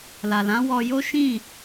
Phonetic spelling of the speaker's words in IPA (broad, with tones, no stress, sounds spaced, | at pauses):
l a˨ l ã˨˦ w ɔ˧ j o˦ ʃ ĩ˦˨